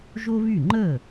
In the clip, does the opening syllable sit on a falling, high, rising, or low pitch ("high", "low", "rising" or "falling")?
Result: high